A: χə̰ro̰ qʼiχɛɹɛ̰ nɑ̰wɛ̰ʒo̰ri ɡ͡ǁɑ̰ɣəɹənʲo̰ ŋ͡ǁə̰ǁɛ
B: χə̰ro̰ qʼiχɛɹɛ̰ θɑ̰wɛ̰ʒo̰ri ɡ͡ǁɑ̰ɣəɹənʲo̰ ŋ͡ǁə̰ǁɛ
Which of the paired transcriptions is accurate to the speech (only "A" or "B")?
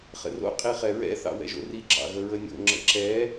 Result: B